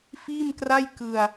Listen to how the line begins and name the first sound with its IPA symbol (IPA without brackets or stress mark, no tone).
f